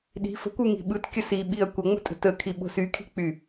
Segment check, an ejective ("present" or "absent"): present